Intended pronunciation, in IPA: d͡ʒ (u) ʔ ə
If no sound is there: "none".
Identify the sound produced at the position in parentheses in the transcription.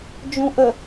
ũ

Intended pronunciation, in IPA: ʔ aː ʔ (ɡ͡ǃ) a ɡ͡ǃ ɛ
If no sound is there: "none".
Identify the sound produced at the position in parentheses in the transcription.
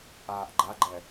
ɡ͡ǃ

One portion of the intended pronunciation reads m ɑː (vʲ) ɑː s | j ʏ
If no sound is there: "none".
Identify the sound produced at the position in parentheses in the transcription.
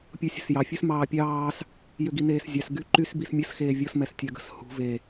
pʲ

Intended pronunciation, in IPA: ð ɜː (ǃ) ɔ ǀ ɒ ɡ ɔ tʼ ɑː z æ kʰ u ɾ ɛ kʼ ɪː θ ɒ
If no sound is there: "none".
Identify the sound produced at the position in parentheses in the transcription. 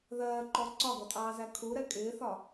ǃ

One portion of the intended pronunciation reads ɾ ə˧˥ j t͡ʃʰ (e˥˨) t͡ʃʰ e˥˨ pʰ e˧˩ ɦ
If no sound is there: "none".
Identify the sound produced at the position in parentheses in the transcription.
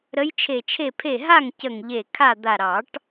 e˧˩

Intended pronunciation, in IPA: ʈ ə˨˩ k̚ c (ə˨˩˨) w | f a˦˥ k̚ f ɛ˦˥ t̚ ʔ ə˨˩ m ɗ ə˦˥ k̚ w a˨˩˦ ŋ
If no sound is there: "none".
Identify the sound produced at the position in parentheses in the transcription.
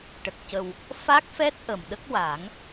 ə˨˩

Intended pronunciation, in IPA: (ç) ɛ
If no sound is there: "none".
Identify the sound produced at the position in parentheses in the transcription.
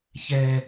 ç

